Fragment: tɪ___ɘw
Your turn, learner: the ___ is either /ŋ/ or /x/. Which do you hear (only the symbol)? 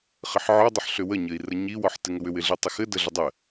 ŋ